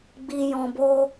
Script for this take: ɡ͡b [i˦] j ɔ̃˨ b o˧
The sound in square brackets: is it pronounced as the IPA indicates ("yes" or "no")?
no